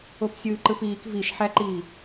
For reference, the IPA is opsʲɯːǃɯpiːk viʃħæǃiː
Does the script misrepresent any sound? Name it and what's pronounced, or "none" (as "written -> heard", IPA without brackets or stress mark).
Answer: none